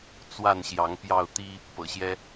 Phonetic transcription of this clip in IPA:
t͡s w a˥˨ n ɕ j ɑ˨˦ ŋ p j ɑ˥˨ ʊ̯ t̪ i˦ | p ɤ̰˨˩ ɕ j ɛ˦

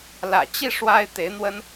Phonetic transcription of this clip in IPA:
l ä̰˨˩ t͡ɕ i˥˩ ʂ w a˥ ɪ̯ t̪ e˧˥ ɪ̯ n̪ w ə˥ n

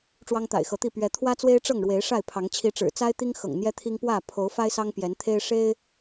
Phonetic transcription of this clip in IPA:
ʈ͡ʂ w ɑ˦ ŋ t̪ a̰˨˩ ɪ̯ x ɤ˨˦ t̪ i˥˨ p ɥ ɛ˨˦ t̪ʰ w ä˦ t͡s w e˦ ɪ̯ ʈ͡ʂ ɤ˥˨ ŋ ɻ w e˨˦ ɪ̯ ʂ a˥˨ ɪ̯ pʰ ɑ˨˦ ŋ t͡ɕʰ i˨˦ ʈ͡ʂ ɻ̩˨˩ t͡s a˦ ɪ̯ t̪ i˦ ŋ x ɤ̰˨˩ ŋ n̪ j ɛ˦ t̪ʰ i˦ ŋ p w ä˥˨ pʰ o˨˦ ʊ̯ f a˦ ɪ̯ s ɑ˦ ŋ p j ɛ˨˦ n t̪ʰ e˦ ɪ̯ ʂ e˦ ɪ̯

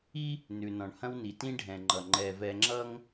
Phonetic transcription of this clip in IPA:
i˦ | n ʉ˨ n ɔ̃˨ ɳ h ɐ̃˦ w n i˨ t ĩ˦ ɖʱ ɛ̃˨ ŋ͡ǃ ʌ˨ ŋ͡ǃ ɛ˨ v ɛ˨ ŋ͡ǁ ʌ˦ ŋ

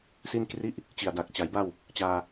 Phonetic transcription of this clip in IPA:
s i˥˩ n k r i˥˩ ʔ | t͡ɕ i˨˩ a̯ d a˨˩ k̚ t͡ɕ a˩˦ j b a˥˩ w | t͡ɕ aː˧

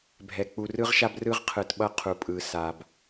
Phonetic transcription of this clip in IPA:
bʱ ɛ˨ k͡p u˨ r ɯ˦ ʁ ʃ a˦ b r ɯ˦ ʁ qʰ ɯ˨ t ɓ ʌ˦ qʰ u˨ pʼ ɯ˨ s a˨ b

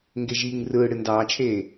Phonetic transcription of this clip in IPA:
ŋ ɡ e ʒ iː ŋ r ɯː ɽ ɨ n d ɑː t͡ʃʰ eː

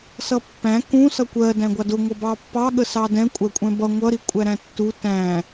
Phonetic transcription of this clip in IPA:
s ʌ pː æ̃ k ũ s ʌ kʷ ɜ d æ̃ ɡʷ ɑ d ʊ ŋʷ ʌ b ɑ pː ɑ ɠ ə s ɑ d ɛ̃ kʷʼ æ kʷʼ ɛ̃ b ʌ ŋʷ ʌ ɾ i kʷʼ æ ɾ æ̃ tː u t æ̃

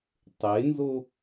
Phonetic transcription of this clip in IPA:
tˤ e n z o

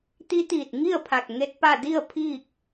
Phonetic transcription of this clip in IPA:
t̪ i˧˥ t̪ iː˧˩ t̚ ŋ i˥˨ ə̯ pʰ a˧˩ k̚ ŋ e˧˥ t̚ p a˥˨ d i˥˨ ə̯ pʰ iː˥˨ k̚

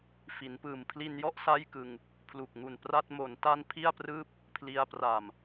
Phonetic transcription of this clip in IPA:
f i˩˦ n p ɯː˨˩ m pʰ l i˧ n j ɔ˥˩ ʔ s a˥˩ j k ɯ˧ ŋ | pʰ l u˨˩ k̚ ŋ u˨˩ n p r a˥˩ t̚ m o˩˦ n t a˧ n pʰ i˥˩ a̯ p r ɯː˥˩ p̚ | pʰ l i˧ a̯ p r a˨˩ m

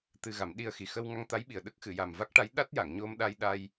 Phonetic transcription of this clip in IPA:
t̪ ɨ˧ ɣ a˨˩˦ m ɗ i˧ ə̯ x i˨˩ x ə˧ w ŋ a˧ ŋ t̪ a˧˥ j ɓ i˨˩ ə̯ ɗ ə˦˥ k̚ x ɨ˨˩˨ j a˨˩ m v a˦˥ k̚ ʈ a˧˥ j ɗ a˦˥ t̚ j a˨˩˨ ŋ ɲ o˧ m ɗ a˧ j ɗ a˧ j

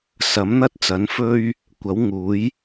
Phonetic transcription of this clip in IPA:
s ɐ˨˥ m n̪ ɐ˥ t̚ t͡s ɐ˨˥ n f ɵ˥ ɥ | kʷ ɐ˨˥ w ŋ uː˨˥ j

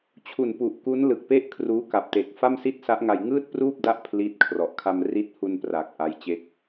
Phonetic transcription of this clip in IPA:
t͡ɕʰ u˨˩ n p u˨˩ ʔ k u˦˥ n l ɯ˨˩ k̚ p e˥˩ ʔ kʰ r uː˦˥ k a˨˩ p̚ t e˨˩ k̚ f a˥˩ m s i˥˩ t̚ s a˦˥ ʔ ŋ a˧ j ŋ ɯː˥˩ t̚ p r uː˥˩ p̚ d a˦˥ ʔ pʰ l i˦˥ t̚ kʰ r ɔ˨˩ ʔ kʰ a˧ m r i˦˥ t̚ h u˧ n p r aː˨˩ k̚ ʔ a˦˥ j t͡ɕ e˦˥ k̚

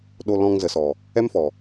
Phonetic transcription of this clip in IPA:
ɗ o˧ l ɔ̃˧ ŋ z ə˨ s ɔ˨ | ɛ˦ m f ɔ˨

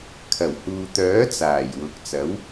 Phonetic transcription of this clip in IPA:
kʰ ɐ˨˩ w h uː˨ t̪ œː˨˥ t͡s aː˨˩ j w ʊ˨ k̚ t͡s ɐ˨˥ w

